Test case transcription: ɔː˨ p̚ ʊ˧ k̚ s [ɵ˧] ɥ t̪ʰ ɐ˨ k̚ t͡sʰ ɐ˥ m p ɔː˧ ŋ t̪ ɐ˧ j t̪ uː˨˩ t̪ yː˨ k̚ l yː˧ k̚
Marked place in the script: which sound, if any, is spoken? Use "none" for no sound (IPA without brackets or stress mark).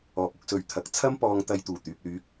ɵ˨˧